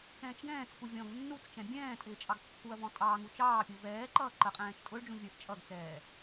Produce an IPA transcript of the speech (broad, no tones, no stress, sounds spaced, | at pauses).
k ɛ̃ː t͡ʃ ɡ ɛ̃ː t͡s k u vʲ ɔ̃ ɡ nː u t͡s t͡ʃ ɛ̃ bʲ ɛ̃ː tʼ ɪː t͡ʃʼ ɑ ɡ kː u ɐ̯ v ɔ̃ tʼ ɑː ŋ u t͡ʃ ɑː pʲ u v ɛː ǃ ʌː ǃ ə qʼ ɛ̃ː t͡ʃ tʼ ʊ ɭ d͡ʒ ũ vʲ ə˞ ʔ t͡ʃʼ ʌ ɡ t͡s ɛː